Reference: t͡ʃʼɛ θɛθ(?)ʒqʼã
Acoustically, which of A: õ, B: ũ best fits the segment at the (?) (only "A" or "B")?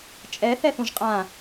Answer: B